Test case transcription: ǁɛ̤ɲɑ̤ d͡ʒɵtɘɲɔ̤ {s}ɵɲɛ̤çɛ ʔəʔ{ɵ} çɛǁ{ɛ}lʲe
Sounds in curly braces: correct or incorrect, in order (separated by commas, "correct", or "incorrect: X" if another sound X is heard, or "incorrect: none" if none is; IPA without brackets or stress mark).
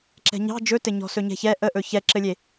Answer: correct, correct, incorrect: ɘ